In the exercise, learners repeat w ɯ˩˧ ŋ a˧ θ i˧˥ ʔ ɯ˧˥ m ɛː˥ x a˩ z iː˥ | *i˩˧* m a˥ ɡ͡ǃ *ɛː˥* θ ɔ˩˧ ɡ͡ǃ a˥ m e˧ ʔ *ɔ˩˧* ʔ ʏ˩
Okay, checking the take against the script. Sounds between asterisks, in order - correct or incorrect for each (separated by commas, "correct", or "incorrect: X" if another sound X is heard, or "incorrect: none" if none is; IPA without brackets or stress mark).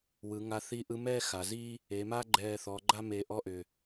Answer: incorrect: e˩˧, incorrect: ɛː˧, incorrect: ɔ˧˥